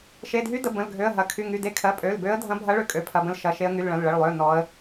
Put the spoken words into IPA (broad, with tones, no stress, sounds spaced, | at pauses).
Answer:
ʃ e˩˧˩ dʱ y˧˥ d ə˩˧˩ b ə̃˩˧˩ l ɡʱ ø˩˧˩ ə̯ ɦ ɐ˩˧˩ kʰ y˩˧˩ ŋ y˩˧˩ d e˧˥ kʰ ɜ˩˧˩ pʼ ø˩˧˩ l b ø˧˥ ə̯ dʱ ɐ̃˧˥ bʱ ɐ˧˥ ɭ ø˧˥ kʼ ø˩˧˩ pʰ ɐ˩˧˩ b ə̃˧˥ l ʃ ɐ˩˧˩ ʃ e˧˥ ə̯ ŋ y˩˧˩ l ɭ ɐ̃˩˧˩ l ɭ ə˩˧˩ ɭ lˠ ø˩˧˩ n ɔ˧˥ ə̯